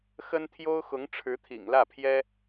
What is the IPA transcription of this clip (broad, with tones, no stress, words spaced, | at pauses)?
xə˥nt̪ʰjo˥ʊ̯xʊ˧˥ŋ ʈ͡ʂʰɻ̩˧˥t̪ʰḭ˨˩ŋlä˥˩pʰjɛ˥